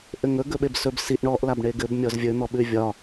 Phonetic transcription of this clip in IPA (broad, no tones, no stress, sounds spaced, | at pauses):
ʔ ɘ ŋ ɵ ɡ ɵ ɓ e b s ɵ b s i ʔ ɳ ɔ ʔ l a b ɳ e ɡ ɘ b mʲ ɔ z vʲ ɵ n̪ ɔ ɓ ʉ vʲ ɒ